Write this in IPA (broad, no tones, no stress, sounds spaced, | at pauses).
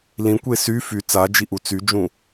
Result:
l ĩ kʷ e s y f y t͡s a d͡ʒ i ʔ u t͡s y d͡ʒ ũ